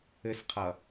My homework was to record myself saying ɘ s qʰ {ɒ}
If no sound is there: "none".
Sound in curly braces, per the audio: ʌ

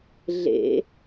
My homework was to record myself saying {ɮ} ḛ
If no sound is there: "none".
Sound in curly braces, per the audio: ɮ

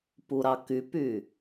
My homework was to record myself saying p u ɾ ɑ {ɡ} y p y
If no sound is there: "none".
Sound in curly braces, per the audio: k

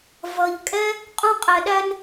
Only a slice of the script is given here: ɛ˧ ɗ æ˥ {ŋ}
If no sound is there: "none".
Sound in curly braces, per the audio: n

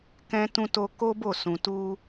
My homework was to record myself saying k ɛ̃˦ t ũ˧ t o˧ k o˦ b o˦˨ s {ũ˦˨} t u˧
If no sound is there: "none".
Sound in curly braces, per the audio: ũ˨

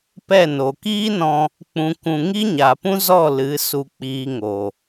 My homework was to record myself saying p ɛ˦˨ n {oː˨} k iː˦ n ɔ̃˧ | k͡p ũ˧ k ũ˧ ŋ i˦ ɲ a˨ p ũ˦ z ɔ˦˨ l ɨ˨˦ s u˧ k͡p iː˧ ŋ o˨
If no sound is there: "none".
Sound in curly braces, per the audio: o˨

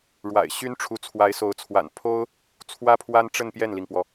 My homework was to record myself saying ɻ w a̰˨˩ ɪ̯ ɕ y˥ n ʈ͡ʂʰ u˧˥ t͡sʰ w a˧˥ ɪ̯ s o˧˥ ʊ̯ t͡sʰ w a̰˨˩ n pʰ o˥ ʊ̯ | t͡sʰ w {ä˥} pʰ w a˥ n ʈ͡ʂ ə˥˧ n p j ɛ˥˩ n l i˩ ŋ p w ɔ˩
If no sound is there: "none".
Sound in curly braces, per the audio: ä˥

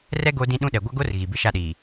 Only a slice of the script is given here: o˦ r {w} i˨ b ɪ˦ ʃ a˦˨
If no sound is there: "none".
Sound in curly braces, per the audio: ɣ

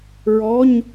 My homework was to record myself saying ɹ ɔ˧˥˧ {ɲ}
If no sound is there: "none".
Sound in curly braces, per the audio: ɲ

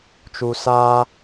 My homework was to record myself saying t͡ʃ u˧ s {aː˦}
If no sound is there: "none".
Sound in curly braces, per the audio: aː˦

